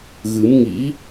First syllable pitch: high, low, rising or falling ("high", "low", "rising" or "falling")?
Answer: rising